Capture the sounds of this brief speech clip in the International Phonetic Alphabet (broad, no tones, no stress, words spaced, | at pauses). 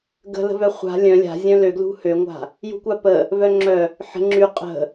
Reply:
ɡə̤lə̤vœ χʷa̤ lʲœ̃ lʲa̤zʲœ̃ løɡlṳ høŋʷa̤ | jṳkʷapə | vœŋ͡ǁœ | ħə̤ ŋ͡ǁy qʼə̤